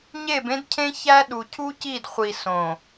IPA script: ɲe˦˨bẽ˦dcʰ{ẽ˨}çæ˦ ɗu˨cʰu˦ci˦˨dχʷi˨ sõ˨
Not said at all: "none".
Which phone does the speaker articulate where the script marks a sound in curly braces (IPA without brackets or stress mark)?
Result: ẽ˦